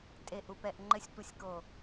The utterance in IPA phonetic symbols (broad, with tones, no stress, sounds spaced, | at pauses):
tʼ e˨ ʔ u˨ p ɛ˨ ʔ ŋ͡ǃ ɘ˨ sʲ tʷ ɐ˨ sʲ k o˨